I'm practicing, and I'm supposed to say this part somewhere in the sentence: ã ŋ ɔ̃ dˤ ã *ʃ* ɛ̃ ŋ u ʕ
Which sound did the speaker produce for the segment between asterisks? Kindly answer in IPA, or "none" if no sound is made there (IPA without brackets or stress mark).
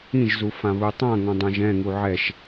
ʒ